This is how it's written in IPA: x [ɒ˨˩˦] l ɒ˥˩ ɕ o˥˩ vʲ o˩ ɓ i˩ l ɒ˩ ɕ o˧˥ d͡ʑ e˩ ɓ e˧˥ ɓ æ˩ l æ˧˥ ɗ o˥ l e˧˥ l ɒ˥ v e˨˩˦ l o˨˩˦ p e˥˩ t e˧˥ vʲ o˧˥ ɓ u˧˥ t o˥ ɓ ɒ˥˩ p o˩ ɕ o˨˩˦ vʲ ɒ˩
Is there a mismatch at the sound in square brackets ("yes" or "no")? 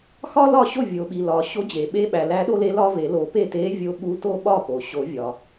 yes